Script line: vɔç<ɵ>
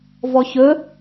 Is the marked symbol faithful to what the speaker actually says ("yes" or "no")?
yes